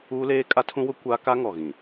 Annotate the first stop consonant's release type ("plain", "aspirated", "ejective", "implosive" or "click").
ejective